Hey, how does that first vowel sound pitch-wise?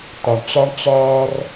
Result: low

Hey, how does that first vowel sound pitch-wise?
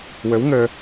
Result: rising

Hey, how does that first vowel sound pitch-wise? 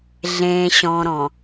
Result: low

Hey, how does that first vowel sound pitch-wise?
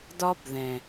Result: high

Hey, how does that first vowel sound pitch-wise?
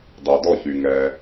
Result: low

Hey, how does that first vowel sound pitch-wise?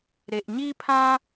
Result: low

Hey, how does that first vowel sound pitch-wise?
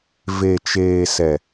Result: low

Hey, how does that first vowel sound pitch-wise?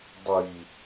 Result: low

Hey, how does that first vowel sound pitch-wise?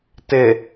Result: low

